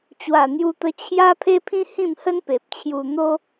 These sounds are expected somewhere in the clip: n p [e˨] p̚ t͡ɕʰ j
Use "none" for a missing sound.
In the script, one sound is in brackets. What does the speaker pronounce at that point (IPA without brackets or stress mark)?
e˨